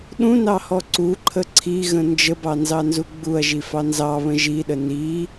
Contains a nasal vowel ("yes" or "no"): yes